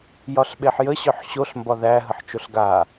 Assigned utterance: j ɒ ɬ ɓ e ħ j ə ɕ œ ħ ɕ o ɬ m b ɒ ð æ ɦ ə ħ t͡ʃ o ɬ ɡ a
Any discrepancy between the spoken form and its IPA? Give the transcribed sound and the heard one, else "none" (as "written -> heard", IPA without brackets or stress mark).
none